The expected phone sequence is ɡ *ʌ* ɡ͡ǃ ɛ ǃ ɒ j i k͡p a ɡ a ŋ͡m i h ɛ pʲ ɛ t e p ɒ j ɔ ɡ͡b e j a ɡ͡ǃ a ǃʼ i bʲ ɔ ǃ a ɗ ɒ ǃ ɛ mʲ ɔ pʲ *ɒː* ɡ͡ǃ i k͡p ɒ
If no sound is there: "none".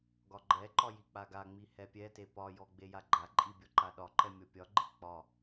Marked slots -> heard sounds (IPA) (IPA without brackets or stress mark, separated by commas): ɒ, ɒ